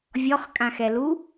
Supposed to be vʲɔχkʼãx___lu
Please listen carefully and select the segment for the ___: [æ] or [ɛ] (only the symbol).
ɛ